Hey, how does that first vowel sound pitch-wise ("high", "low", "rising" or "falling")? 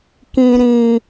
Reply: low